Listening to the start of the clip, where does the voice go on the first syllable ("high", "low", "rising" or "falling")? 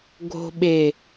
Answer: low